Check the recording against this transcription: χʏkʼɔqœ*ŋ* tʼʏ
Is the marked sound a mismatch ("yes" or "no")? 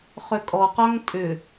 no